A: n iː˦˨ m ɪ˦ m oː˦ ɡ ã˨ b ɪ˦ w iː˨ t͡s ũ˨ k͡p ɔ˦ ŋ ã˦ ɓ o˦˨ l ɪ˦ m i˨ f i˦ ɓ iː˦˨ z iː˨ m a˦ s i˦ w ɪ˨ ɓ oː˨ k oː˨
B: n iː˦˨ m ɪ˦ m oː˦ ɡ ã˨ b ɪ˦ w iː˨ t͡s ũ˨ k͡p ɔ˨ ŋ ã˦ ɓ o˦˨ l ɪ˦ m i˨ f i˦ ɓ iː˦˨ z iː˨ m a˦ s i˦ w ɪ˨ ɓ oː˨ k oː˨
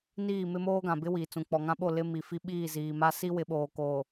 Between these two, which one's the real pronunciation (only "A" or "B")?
B